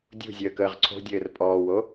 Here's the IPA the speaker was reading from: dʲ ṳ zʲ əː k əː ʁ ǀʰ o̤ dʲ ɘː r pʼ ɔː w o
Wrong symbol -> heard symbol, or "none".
none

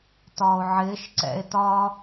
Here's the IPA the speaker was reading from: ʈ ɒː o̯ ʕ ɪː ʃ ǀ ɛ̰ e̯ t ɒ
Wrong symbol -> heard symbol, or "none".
ʈ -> t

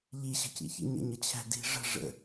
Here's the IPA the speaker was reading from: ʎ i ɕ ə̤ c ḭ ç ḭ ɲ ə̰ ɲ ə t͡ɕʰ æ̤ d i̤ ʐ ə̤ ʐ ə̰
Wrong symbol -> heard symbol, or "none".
none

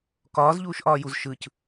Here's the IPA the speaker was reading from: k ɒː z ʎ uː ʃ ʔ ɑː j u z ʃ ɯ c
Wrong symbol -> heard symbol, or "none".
ɑː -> ɒː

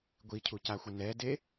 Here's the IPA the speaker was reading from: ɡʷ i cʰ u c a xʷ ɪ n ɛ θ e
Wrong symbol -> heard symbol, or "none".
θ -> d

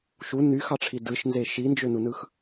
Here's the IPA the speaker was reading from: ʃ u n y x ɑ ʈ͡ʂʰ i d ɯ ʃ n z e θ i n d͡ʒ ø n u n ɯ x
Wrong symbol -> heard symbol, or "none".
θ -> ʃ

